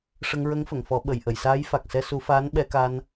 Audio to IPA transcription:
ʂ ə˧ ŋ ɹ ə˧˥ ŋ f ə˨˩˨ ŋ f ɔ˨˩˦ ɓ ə˨˩˨ j ʔ ə˨˩˨ j s aː˧˥ j f a˨˩ k̚ s ɛ˧ s u˨˩˦ f aː˧˥ n ɓ ɛ˧ k a˧ n

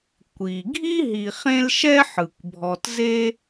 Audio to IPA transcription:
kʷ i˩ ɡʱ i˥ ɦ i˨ χ ẽ˦ l ʃ ɛ˦ ħ ɯ˩ kʷ bʱ ɔ˨ t z e˥

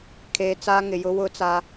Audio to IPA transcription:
kʰ eː˨ t͡s aː˦ ŋ ɪ˨ j ʊ˦ w ʊ˦ t͡s a˦

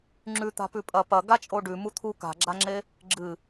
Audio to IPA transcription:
ŋ͡ǁ ʉ t̪ a̤ p ʉ pʼ ɐ p ɐ ɡ a t͡ʃʼ o ɖ ʉ m u t̪ʰ u k a̤ ɡ͡ǁ a ŋ͡ǁ e | ɡ͡ǁ ɨ

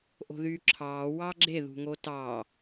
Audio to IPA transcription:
ʔ o̤ ð yː ǁʰ ɑː w ɑ ɡ͡ǁ e ð ṳ ŋ o t ɑ

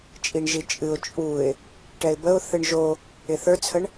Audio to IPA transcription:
t͡ʃʼ i ɳ ʒ i t͡ʃʼ ɨ ʊ̯ t͡ʃʼ u ɪ̯ | ʈ ɛ ɪ̯ b ə ʊ̯ θ ɨ ɳ ʒ o | ɪ θ ə˞ t͡sʰ ə ɳ

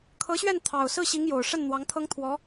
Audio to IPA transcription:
kʰ ɤ˧˥ ɕ ɥ ɛ˥˩ n t̪ʰ ɑ˨˩ ʊ̯ s ɹ̩˥˩ ɕ i˧˥ ŋ j o˨˩ ʊ̯ ʂ ə˥˩ n n̪ w ɑ˧˥ ŋ t̪ʰ ɤ˥ ŋ t̪ʰ w ɔ˧˥

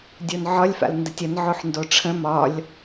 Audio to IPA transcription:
dʲ o n ʕ ɒ lʲ f a̰ l n d ə tʲ ə n ʕ o ħ n d o ʈ͡ʂʰ ə̃ m ɒ lʲ

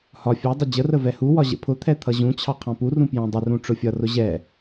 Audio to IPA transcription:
h ɒ fʲ ɜ dˤ ə d͡ʑ ə r ə v ɛ h u w ɒ ʑ ə̰ pʰ ʊ t̪ʰ ɛ t̪ʰ ʌ ʑ ũ t͡ɕʰ ɑ qʰ ɑ̃ p u r ũ p j ɛ̃ dˤ ə r ũ ʈ͡ʂ ʊ fʲ ʌ r ʊ ʑ ɛ

